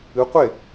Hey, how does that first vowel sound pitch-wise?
rising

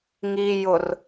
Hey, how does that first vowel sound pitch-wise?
low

